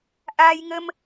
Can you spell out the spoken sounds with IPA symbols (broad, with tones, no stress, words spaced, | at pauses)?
ʔaː˧jŋə˧m